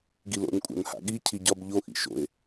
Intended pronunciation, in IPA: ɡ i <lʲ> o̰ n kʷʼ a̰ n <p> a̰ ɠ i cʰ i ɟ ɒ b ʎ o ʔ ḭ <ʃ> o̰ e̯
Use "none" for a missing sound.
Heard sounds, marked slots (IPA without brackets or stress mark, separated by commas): l, h, ʃ